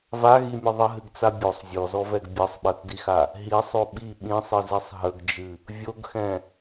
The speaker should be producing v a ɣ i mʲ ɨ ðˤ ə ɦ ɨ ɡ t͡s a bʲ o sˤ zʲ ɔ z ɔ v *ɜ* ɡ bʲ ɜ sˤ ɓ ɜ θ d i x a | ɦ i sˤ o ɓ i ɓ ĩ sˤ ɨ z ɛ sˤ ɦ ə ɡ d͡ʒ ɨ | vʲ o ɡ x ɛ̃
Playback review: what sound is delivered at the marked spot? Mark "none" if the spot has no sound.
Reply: ɛ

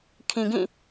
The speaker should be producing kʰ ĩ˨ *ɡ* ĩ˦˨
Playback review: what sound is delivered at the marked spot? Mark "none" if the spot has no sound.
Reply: ɡ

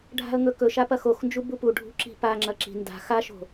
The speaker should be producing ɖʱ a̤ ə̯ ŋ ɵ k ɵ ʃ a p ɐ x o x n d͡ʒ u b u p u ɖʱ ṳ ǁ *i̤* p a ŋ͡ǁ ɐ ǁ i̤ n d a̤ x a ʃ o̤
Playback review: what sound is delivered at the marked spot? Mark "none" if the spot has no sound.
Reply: i̤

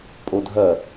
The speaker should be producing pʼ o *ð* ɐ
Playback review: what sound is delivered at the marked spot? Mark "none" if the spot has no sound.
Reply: dʱ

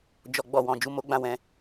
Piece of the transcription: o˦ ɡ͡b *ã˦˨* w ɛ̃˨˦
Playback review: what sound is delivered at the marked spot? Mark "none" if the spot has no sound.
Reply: ã˦˨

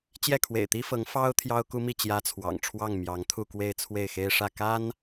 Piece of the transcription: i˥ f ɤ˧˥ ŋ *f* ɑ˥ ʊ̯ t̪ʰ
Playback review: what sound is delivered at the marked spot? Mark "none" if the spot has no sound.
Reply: f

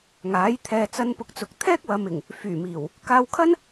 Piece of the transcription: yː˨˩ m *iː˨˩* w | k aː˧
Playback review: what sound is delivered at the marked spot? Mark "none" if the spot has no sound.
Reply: iː˨˩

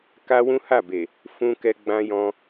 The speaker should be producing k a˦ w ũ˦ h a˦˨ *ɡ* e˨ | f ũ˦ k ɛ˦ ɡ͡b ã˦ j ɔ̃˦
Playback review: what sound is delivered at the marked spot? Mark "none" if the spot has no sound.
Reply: b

